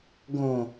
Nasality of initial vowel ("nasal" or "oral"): nasal